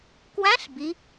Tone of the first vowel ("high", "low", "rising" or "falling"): rising